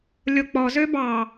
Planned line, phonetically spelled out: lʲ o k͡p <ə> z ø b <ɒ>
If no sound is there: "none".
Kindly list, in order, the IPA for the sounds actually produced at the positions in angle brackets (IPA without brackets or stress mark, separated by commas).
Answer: ɔ, ɑ